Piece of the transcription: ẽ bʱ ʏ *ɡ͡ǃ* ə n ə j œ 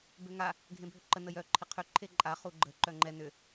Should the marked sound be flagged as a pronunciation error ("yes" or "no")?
yes